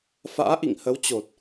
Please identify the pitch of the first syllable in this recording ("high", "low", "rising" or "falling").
rising